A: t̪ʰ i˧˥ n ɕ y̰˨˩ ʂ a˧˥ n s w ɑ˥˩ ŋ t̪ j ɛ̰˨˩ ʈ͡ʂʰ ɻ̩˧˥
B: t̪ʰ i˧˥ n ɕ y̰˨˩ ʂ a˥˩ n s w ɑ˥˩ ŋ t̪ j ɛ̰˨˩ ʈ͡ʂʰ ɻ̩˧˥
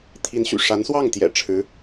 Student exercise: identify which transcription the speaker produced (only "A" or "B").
A